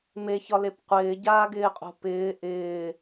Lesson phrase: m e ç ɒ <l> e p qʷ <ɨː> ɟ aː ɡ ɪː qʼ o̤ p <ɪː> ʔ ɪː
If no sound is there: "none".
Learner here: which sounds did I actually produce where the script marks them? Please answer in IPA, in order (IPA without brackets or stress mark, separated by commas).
l, ɪː, ɪː